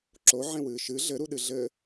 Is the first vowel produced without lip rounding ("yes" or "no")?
no